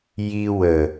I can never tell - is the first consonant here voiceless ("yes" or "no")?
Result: no